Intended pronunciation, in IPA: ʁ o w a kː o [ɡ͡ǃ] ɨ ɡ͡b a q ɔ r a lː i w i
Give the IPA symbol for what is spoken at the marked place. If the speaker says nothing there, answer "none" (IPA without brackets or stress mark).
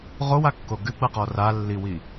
ɡ